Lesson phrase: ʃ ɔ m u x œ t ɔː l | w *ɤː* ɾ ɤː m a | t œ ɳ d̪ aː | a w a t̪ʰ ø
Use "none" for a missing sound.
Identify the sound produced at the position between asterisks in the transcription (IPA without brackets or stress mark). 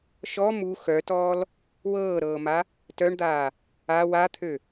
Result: ɤː